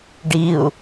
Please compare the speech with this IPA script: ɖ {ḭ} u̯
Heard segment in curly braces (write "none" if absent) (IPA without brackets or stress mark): i